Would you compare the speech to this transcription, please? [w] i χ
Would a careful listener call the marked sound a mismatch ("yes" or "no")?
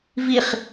yes